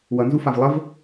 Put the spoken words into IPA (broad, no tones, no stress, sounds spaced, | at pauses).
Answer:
w ʌ n z u f a v lˠ ə v